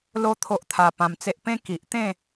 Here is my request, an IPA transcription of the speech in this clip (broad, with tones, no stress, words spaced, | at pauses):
lo˦ t̪ʰo˦ʔt̪ʰa˧pã˧mt͡se˦ʔ pẽ˦ki˨ʔ t̪ẽ˥˧